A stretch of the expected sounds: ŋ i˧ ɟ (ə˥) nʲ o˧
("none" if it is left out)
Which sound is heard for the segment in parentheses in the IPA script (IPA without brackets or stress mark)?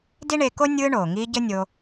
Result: ə˥